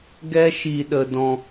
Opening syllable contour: high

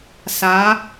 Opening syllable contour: rising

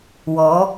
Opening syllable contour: rising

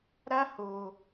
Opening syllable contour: high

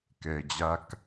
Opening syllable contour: low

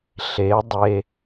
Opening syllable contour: rising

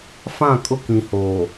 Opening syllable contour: falling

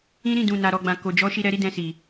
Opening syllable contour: high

